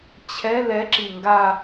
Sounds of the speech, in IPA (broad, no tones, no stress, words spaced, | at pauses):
t͡ɕʰɛ lɛǁi ŋɡa